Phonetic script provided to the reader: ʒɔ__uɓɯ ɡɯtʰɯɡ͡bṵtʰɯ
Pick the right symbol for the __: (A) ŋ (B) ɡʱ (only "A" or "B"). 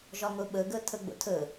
A